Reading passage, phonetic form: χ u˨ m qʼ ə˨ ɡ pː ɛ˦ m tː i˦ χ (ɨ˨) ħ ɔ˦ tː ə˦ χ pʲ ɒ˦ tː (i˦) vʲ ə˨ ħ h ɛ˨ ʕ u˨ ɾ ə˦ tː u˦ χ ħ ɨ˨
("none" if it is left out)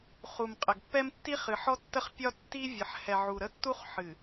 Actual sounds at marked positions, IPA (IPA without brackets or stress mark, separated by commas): ɨ˨, i˦